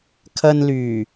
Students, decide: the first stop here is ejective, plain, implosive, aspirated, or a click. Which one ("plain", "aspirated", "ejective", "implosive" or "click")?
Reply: aspirated